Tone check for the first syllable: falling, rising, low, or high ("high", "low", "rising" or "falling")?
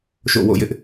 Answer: falling